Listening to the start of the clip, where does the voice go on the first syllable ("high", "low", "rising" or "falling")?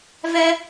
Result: high